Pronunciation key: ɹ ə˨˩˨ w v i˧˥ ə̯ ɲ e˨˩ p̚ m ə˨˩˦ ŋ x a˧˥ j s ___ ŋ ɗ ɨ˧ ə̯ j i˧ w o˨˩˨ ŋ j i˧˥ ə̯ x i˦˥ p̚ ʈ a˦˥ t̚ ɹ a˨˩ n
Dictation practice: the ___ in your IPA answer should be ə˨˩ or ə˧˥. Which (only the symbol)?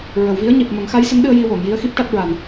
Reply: ə˧˥